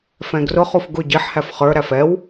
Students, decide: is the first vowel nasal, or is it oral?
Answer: nasal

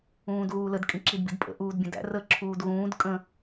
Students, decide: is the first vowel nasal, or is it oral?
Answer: nasal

